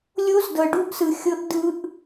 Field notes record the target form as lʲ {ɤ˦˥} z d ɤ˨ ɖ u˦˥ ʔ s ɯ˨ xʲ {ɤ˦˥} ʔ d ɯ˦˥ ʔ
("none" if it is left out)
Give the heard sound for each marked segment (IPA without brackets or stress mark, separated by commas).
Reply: o˦˥, ɤ˦˥